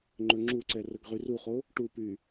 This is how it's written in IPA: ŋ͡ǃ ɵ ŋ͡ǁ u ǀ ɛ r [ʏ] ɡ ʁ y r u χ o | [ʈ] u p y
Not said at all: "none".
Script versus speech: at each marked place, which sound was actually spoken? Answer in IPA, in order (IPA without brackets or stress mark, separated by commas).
ə, ʈ